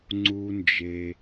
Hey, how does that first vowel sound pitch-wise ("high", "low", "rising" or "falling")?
high